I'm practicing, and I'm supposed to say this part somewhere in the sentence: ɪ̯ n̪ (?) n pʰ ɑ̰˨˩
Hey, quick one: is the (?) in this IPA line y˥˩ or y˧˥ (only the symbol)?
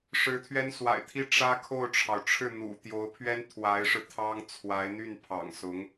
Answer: y˥˩